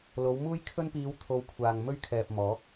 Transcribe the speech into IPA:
l o˨˧ w m uː˥ j kʰ ɵ˥ n p iː˧ w t̪ʰ o˧ w kʷʰ aː˨ ŋ m ɵ˥ ɥ kʰ ɛː˨ p̚ m ɔː˨˥ k̚

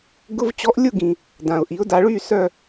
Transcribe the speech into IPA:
ɡ ʊ˧˥˧ v t͡ɕ ɔ˧˥ ʔ lʲ ʊ˦˨ ɡ ĩ˩ | d ã˩ ʊ̯ ʔ i˩˧ ʊ̯ d a˩˧ ɭ y˦˨ s œ˦˨

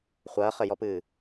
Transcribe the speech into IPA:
χʷ ɐː χ ɘ j ɔ p ɨː

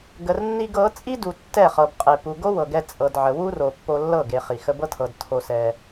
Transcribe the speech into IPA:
ɡ ə˨ r nː i˧ ɡ ɤ˨˦ t͡sʼ i˦ d u˨ tː ɛ˦˨ χ ɤ˨ b qʼ e˨ p u˨ ɡ o˦ w ɤ˨ ɡ ɛ˧ t͡sʼ ɤ˨ d ʕ ə˨ w u˦ r o˨ pː o˧ lː ɤ˦˨ ɡ e˨ χ i˨ x ə˧ b ɤ˦ tʰ ɤ˨ d tʰ o˧ s ɛ˧

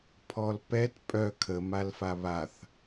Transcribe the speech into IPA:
pʰ ɔ l p ɛ t pʼ œ kʰ ə m a l f a β a θ

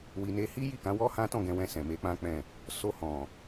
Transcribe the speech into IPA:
w i˧ n e˦ h i˦ j i˦˨ k ã˨˦ w ɔ˦ h ã˦ t ɔ̃˦˨ ɡ ɛ̃˧ w ɛ̃˧ s ɛ̃˨ m e˧ k͡p ã˦ k͡p ɛ̃˦˨ | s o˧ h ɔ̃˨

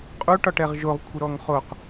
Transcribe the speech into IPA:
qʼ u ʈ ɒ ʈ ɛ ʁ ʒ o ʁ kʷʰ ə ɾ ɔ ŋ χ o q

